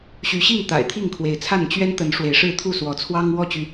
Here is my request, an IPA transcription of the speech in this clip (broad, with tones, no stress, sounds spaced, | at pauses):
ɕ y˨˦ ɕ i˥˨ ŋ t̪ a̰˨˩ ɪ̯ t̪ʰ i˥˨ ŋ kʰ w e˨˦ ɪ̯ t͡sʰ a˥˨ n t͡ɕ ɥ ɛ˦ n t̪ ə˨˦ n ʂ w e˨˦ ɪ̯ ʂ ɻ̩˥˨ t̪ʰ u˥˨ s w ɔ˨˦ t͡sʰ w ɑ˦ ŋ w ɔ˥˨ t͡ɕ y˩